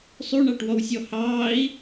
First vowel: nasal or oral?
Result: oral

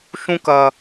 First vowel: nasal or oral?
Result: nasal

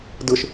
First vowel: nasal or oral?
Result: oral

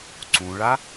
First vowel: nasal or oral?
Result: nasal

